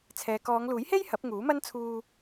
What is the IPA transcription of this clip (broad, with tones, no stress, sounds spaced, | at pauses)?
t͡sʰ ɛː˨ k ɔː˨˧ ŋ l uː˨˥ j h e˥ j h ɐ˨˥ p̚ ŋ uː˨˥ m ɐ˥ n t͡sʰ uː˧